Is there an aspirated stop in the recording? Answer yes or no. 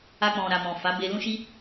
no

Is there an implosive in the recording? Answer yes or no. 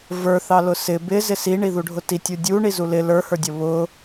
no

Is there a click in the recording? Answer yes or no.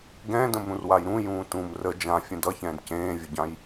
no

